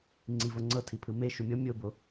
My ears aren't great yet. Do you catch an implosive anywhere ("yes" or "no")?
no